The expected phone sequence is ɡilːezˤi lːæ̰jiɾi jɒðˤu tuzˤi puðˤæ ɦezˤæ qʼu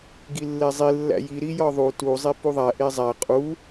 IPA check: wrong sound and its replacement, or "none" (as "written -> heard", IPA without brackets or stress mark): ɦ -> ʔ